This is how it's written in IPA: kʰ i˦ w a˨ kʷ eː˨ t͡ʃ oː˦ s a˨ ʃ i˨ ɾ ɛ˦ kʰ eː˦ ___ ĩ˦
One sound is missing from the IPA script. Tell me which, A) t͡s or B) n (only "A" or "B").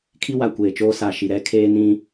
B